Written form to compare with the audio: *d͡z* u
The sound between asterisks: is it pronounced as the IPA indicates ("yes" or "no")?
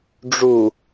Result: no